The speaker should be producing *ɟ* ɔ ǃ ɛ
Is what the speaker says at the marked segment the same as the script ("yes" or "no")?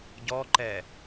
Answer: yes